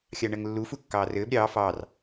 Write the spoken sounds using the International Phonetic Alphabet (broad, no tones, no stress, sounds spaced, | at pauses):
xʲ ɑ ɳ ɜ ŋ lː u f u kː ɑː r ɘː b ɾʲ ɑː f ɑː r